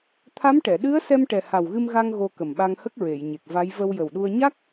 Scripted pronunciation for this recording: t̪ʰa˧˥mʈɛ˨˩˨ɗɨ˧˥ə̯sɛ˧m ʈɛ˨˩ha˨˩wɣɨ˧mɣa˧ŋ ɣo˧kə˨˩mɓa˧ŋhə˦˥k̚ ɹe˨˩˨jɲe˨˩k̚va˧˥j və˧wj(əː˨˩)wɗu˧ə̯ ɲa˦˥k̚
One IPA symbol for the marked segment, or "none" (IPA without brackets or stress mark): ə˨˩